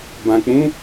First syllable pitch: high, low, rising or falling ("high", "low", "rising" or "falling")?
low